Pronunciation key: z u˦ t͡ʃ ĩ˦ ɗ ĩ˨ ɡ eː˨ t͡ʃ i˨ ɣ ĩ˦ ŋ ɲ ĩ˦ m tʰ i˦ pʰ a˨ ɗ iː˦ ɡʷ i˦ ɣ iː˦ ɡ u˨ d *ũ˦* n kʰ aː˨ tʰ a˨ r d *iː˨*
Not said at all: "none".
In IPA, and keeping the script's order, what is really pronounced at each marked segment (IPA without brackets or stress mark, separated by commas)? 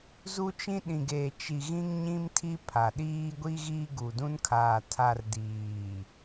ũ˦, iː˨